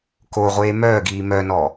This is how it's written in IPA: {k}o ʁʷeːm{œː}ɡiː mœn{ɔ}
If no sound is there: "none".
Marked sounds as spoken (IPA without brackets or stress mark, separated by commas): k, œː, ɔ